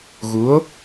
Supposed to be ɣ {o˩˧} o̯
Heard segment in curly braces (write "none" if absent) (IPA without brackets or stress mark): u˩˧